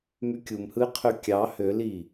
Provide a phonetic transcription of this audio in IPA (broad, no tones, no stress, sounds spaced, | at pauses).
m y kʲ u m h ɯ ɪ̯ qʰ ø kʲ ɑ h ø l i